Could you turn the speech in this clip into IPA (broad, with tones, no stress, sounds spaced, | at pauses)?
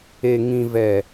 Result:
e˨ ŋ ĩ˨ v ɛ˨